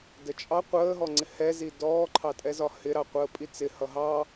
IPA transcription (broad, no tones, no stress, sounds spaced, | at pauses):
d ə t͡ʃʼ ɑ qʷ əː ɦ ɔ ŋ͡ǀ ɪ h ɛ z i d ɔː ǃʰ ɑ tʼ ɛ z ɒ h ɪ ɾ ɑ qʷ əː pʼ i t͡s ɪ h ʌ ɦ ɑ